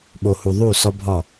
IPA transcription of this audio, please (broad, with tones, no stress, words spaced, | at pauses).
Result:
ɓo˨hu˨ ðˤu˦˨ sɒ˦bʱɒ˦˨